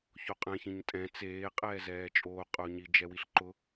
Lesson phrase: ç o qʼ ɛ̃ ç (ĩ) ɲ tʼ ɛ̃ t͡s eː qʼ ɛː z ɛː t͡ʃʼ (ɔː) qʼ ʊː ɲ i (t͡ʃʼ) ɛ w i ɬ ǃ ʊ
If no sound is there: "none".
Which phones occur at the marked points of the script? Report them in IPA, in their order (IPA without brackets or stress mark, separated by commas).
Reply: ĩ, oː, d͡ʒ